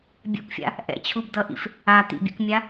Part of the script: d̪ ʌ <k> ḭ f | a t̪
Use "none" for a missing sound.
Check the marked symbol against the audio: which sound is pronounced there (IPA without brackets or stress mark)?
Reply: ʔ